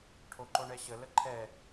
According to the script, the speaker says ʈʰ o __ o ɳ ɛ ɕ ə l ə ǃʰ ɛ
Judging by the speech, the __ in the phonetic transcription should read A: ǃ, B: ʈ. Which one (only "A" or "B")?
A